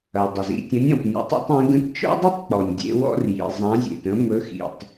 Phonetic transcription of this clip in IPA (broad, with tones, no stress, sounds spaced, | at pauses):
ɐ˩ dˤ ə˩ z ḭ˩ tʲ ə̃˨˥ nʲ ɔ̃˩ p nʲ ɔ̰˨˥ tˤ ḛ˥ tˤ ẽ˨˥ ɡ ə̃˨˥ t t͡ʃ ɔ̰˥ dˤ i˥ tˤ k͡p ɔ˩ nʲ dʲ ḛ˨˥ w ɔ̰˥ r j ḭ˩ zˤ ã˨˥ zʲ ḛ˩ t ə̃˨˥ m ɵ˨˥ x ḭ˩ tˤ